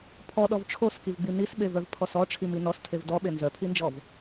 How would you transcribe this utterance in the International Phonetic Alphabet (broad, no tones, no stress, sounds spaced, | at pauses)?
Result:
pʰ ɔ ɗ ɔ v ʈ͡ʂʰ o s k i v ɡ͡b i n i s ɓ e v œ v pʰ ɔ s ɔ ʈ͡ʂʰ i m i n ɔ s tʰ e v d ɔ ɓ e n z œ pʰ i n d͡ʒ ɔ v